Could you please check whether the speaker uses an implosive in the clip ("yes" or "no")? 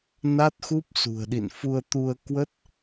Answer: yes